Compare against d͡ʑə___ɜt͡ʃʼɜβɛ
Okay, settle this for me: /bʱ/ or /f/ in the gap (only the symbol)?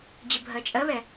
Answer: bʱ